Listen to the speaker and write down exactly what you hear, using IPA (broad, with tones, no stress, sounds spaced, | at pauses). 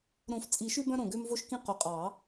ɾ õ˨˩˦ f t͡sʼ i˨˩˦ ʃ ʉ˦ b œ̃˦ ɾ õ˨˩ ɡ ø˦ m v o˦ ʃ k ĩ˦ q ɵ˨˩ qʼ ɑ˨˩˦